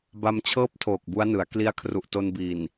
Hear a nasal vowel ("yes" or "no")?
no